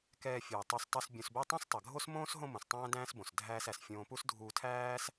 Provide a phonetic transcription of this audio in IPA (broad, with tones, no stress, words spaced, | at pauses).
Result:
kɛː˧fʲuː˩ tˤo˧stˤu˧s bʲõ˧sbo˥ tˤõ˥stˤɜ˩ɡʱo˥s mõː˥s ɦõ˥mõ˩s tˤæ̃ː˥dæ̃ː˥sbõ˩s dʱæː˧sæ˩s fʲõː˧pu˥s dʱuː˧tʰæː˥s